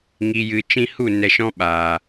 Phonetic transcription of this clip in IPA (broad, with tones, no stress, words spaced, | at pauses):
ŋi˨jɨ˨ t͡ʃĩ˧hu˦˨ nɛ˧ʃɔ̃˦ɓaː˨